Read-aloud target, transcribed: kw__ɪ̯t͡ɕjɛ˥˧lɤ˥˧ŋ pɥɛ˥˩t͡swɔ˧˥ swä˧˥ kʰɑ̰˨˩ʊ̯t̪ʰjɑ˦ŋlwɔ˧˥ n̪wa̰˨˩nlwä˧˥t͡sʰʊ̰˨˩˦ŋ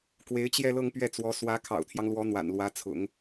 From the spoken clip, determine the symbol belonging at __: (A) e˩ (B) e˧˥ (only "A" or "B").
B